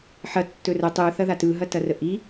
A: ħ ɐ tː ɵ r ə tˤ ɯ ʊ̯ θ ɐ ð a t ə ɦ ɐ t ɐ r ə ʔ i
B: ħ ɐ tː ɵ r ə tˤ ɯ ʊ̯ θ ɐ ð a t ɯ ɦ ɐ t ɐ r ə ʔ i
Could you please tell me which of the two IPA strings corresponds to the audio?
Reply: B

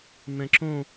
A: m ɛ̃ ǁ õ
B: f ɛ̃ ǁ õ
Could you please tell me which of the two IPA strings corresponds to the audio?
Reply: A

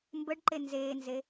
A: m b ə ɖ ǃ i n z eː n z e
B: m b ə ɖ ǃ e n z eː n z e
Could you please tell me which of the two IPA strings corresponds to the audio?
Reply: B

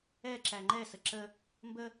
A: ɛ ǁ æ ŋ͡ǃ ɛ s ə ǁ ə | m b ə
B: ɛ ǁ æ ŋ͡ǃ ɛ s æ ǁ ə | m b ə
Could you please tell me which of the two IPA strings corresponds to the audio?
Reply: A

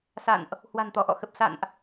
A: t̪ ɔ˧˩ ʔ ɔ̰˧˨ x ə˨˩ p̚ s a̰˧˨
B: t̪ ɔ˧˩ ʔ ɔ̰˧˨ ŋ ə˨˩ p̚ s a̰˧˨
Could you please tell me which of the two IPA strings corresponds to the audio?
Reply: A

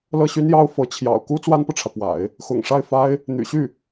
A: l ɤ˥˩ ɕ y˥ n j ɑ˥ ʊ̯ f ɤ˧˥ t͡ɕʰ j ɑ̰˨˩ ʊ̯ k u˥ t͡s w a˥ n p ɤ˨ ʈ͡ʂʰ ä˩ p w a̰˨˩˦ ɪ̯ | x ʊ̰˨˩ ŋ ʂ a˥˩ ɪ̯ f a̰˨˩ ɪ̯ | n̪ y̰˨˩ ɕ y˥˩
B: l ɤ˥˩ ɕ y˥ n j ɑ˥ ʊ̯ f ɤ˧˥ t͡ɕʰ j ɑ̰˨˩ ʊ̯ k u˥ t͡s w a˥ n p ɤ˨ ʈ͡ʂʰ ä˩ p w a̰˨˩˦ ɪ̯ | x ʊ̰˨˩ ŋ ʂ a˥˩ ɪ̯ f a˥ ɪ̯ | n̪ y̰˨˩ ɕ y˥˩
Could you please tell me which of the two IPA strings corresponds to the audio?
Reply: B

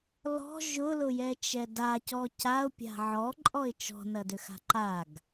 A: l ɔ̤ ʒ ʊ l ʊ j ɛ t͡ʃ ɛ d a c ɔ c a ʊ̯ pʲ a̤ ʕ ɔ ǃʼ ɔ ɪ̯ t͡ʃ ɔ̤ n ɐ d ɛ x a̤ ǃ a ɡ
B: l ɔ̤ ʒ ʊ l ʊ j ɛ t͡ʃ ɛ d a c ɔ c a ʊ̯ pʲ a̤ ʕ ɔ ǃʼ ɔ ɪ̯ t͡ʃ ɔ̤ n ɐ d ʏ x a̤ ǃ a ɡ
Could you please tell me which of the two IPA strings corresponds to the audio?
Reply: B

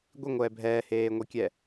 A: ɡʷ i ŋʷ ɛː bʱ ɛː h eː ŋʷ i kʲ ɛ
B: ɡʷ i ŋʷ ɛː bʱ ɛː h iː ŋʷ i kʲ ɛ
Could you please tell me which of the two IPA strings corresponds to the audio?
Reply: A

